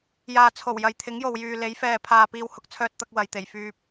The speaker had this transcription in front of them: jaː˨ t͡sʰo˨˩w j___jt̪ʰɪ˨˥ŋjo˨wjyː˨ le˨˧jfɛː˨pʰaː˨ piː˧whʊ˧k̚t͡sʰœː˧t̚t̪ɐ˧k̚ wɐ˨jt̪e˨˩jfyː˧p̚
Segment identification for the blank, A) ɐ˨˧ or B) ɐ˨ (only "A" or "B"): B